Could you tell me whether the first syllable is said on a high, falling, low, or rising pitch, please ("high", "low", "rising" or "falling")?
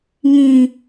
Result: high